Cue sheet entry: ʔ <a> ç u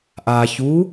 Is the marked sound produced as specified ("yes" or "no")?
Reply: yes